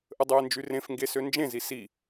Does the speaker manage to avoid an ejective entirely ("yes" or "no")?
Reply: yes